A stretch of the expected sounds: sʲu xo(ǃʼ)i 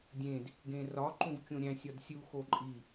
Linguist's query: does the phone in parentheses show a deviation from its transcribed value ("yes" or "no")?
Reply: no